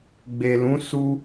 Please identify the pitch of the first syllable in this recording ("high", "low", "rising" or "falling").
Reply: low